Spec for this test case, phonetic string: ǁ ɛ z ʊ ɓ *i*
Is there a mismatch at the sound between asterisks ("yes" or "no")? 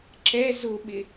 yes